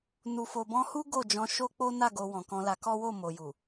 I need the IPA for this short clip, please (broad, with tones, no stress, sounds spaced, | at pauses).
n u˨ f o˨ b ɔ̃˧ h u˦ ɡ o˦˨ d͡ʒ ɔ̃˧ ʃ o˦ k͡p o˦ n a˦˨ ɡ o˧ w ɔ̃˨ k ɔ̃˧ l a˧ k ɔ˦ w o˦˨ m o˨ j u˨